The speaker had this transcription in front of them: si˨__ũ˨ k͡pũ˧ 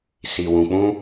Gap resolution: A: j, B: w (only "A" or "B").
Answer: B